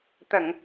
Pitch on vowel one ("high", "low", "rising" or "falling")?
low